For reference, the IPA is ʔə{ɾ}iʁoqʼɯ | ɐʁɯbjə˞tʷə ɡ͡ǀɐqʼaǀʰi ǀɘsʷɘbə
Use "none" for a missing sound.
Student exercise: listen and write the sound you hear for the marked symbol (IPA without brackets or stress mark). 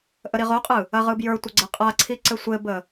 ɾ